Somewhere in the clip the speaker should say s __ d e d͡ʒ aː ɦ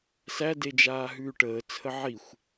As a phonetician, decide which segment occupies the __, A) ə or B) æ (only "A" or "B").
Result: B